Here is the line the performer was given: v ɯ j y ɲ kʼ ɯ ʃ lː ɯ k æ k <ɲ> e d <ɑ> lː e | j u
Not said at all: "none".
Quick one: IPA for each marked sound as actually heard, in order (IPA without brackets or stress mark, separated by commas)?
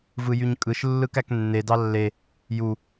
nː, ɑ